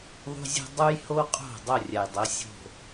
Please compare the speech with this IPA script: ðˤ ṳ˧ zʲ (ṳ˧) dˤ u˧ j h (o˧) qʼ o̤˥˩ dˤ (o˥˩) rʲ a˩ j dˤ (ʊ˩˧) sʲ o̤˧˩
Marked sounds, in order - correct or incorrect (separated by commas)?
correct, correct, correct, correct